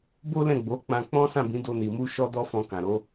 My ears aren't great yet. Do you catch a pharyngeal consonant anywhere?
no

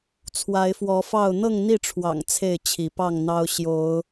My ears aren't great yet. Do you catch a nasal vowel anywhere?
no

